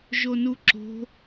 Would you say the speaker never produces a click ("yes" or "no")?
no